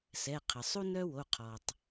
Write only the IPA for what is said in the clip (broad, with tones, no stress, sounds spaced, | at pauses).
s ɛ˩˧˩ qʰ ə˩ sˤ u˥ n œ˥ w o˩˧˩ qʰ ɔ˩ tˤ